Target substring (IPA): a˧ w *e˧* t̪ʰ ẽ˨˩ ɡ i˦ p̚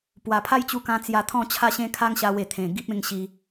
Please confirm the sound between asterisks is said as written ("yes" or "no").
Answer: no